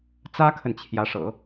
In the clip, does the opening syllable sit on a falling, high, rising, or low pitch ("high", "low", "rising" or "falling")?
high